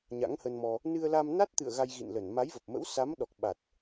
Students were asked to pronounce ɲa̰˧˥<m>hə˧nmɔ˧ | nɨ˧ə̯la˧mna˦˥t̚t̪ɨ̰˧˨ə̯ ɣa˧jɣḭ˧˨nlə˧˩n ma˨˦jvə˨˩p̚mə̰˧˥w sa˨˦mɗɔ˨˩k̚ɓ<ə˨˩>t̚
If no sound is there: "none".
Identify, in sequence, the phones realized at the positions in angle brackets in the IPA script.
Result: ŋ, a˨˩

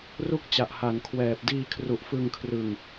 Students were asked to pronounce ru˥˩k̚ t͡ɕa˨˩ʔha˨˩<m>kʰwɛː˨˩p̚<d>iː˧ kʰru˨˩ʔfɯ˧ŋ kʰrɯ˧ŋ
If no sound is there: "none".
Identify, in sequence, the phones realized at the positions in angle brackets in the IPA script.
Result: n, d

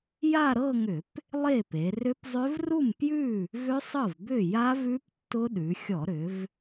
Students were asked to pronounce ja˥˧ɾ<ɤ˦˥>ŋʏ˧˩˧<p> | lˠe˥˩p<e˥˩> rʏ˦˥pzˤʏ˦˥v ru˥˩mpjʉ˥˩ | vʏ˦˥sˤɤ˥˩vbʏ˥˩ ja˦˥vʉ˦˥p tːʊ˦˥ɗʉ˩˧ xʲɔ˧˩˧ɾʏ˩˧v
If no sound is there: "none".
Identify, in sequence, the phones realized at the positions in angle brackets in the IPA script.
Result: ɤ˥˧, p, e˩˧

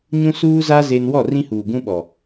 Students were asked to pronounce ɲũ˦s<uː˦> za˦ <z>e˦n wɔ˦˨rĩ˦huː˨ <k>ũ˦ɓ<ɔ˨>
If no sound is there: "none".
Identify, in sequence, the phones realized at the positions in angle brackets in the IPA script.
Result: uː˦, z, ɡ, ɔ˨

